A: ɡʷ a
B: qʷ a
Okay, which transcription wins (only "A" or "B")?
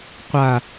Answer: B